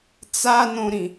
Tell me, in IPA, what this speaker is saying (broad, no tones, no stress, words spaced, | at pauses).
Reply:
t͡sanõɾĩ